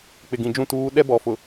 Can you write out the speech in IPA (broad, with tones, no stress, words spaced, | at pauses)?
k͡pɪ˨ɡĩ˨d͡ʒũ˦˨ tuː˨˦ ɗɛ˦bɔ˨ fʊ˨